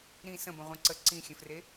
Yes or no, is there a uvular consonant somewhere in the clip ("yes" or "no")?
yes